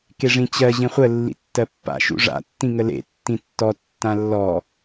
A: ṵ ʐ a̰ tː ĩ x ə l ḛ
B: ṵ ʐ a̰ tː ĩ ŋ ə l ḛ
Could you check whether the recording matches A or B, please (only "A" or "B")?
B